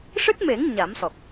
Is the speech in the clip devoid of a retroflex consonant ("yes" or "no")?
no